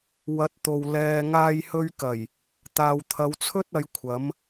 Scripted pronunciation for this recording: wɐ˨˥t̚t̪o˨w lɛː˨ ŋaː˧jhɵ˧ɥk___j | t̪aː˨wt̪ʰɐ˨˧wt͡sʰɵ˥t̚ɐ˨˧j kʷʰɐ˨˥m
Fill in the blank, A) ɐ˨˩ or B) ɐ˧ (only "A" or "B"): A